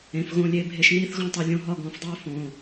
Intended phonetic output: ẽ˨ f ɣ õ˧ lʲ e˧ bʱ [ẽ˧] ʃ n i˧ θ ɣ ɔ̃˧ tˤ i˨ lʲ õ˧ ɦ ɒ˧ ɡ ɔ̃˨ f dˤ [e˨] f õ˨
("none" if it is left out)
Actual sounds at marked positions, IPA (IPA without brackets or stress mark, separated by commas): e˧, e˧